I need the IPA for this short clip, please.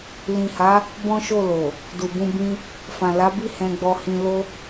l ĩ˨ h a˨˦ | b ɔ̃˦ ʃ o˦˨ l o˨ | d u˨ b ũ˧ b ĩ˦ | f ã˨ l a˨˦ b i˦ h ɛ̃˧ ɡ͡b ɔ˧ h ĩ˧ l o˦

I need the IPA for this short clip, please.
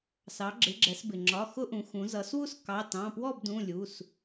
s ɑ˩˧ ɡ͡ǁ ɪ˩˧ ɡ͡ǁ ɛ˩˧ s b ɪ˩ ŋ͡ǁ ɒ˩˧˩ x ʊ˦ ʔ ũ˩˧ x ũ˩˧ z ʌ˩˧ s w u˥˨ s k ɑ˩˧˩ t ɑ̃˩˧˩ p w ɔ˥˨ b d ũ˩˧˩ lʲ u˩˧˩ s

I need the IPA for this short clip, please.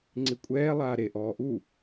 ŋ͡ǀ i kʷʼ ɛː lˠ aː ɾ e ʔ ɔː ʔ u

